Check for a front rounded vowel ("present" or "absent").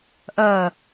present